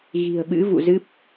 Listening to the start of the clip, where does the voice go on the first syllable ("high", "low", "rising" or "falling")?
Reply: low